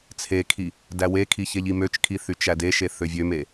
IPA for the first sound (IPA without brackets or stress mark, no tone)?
t͡sʰ